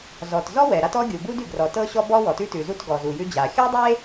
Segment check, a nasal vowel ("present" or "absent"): absent